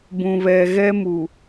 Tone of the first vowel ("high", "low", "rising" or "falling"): low